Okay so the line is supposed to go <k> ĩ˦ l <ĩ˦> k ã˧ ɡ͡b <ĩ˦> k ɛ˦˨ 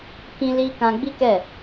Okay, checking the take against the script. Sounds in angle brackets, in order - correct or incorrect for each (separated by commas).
correct, incorrect, incorrect